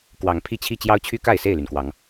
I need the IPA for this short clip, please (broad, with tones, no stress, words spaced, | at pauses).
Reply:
kwɑ˨˦ŋpʰi˦t͡ɕʰi˥˨ t͡ɕjɑ˦ʊ̯t͡ɕʰy˦ka˥˨ɪ̯ se˥˨ɪ̯ly˩nkwɑ˨˦ŋ